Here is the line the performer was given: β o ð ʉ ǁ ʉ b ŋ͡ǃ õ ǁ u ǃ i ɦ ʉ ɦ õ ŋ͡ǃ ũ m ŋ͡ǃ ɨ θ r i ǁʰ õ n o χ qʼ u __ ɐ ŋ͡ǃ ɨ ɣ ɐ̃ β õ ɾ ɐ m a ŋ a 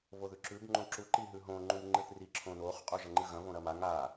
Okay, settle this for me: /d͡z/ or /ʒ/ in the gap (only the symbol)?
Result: ʒ